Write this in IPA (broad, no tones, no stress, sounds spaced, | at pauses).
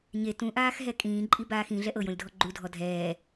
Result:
ɲ e t ũ ʔ aː x ɦ ɛ kʼ ĩː ǃʼ i b aː x ĩ ɮ ɛ ʔ ɤ j õ lʲ dʱ ɔ ɡ͡ǃ u dʱ ɔ dʱ ɛː